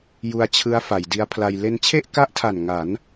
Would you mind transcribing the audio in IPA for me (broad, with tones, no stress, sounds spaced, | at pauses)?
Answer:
j u˧ a̯ t͡ɕʰ ɯ˦˥ a̯ f a˩˦ j d i˦˥ a̯ pʰ l a˧ j l e˧ n t͡ɕʰ e˥˩ ʔ k a˦˥ ʔ tʰ a˨˩ n ŋ a˩˦ n